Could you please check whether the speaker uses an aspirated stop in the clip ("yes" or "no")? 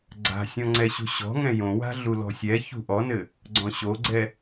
no